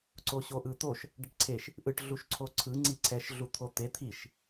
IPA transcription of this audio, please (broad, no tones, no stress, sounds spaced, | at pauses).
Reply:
ǀ o ɕ o ʔ ɯ t̪ o ʃ | ɖ ɛ ʈ ǀʰ e ʃ | ʔ ɯ ʈ ɮ u ʃ ǀʰ o ǀʰ ɯ ŋ͡ǀ i ǀʰ ɛ ʃ ɮ u t̪ʰ o t̪ e t̪ʰ i ʃ